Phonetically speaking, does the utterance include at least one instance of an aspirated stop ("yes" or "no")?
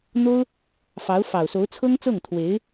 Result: yes